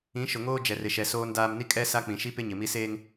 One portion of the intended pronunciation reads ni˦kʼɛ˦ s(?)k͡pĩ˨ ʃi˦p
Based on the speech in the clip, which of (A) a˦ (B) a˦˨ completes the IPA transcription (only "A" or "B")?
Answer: A